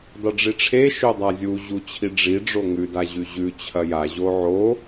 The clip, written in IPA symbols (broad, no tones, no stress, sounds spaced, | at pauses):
dˤ ɨ ɖ͡ʐ i ʈ͡ʂʰ e ʃ ɵ dˤ a zʲ u ʑ u t͡ɕʰ i ɖ͡ʐ i ɖ͡ʐ o ŋ ʉ d a ʑ ʉ ʑ ʉ t͡ɕʰ ɐ j a ʑ o ʕ o